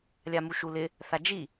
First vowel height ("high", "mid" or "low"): low